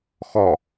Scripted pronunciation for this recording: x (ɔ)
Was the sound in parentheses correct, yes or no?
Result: yes